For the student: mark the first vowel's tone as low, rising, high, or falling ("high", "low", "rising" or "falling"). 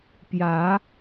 rising